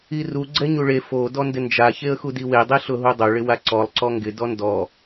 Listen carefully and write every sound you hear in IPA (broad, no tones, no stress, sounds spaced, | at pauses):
i r u ɡ͡ǀ ɛ ɲ u ɭ e f o d ɔ n d ɪ n d͡ʒ a ç e ə̯ x u d i w e dˤ i ɬ ʊ ɦ u dˤ o ɭ ɪ w a ǀ ɔ lˠ ǀ ɔ ŋ ɡ ɪ d ɔ n d ɔ